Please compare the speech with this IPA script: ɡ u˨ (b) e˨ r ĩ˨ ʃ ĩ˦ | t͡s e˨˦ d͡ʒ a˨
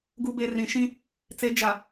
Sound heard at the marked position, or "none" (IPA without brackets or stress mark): b